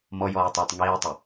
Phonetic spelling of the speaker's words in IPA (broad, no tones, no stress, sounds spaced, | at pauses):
m ɔ j ɔː ɪ̯ tˤ ɪː tˤ ŋ iː ʊ̯ tˤ ɪ